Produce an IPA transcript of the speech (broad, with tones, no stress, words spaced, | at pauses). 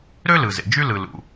ɾø˥lɯ˩zḛ˩ d͡ʒy˥ lɯ˩ lṵ˩